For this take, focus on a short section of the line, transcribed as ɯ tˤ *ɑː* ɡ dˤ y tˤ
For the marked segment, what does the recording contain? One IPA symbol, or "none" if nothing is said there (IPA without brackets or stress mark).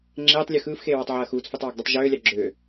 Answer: ɑː